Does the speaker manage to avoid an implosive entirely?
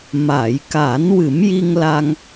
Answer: yes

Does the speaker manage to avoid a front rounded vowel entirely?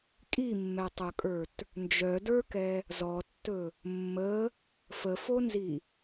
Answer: no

